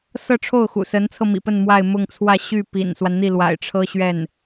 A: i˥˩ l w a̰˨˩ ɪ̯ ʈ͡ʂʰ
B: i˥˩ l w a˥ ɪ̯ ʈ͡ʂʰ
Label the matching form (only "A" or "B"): A